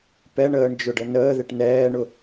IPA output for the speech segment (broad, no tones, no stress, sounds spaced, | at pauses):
p ɛ ɳ əː ɳ d͡ʒ ʊ ɖ ə n əː ð ɪ ʈ n ɛː ɳ ʊ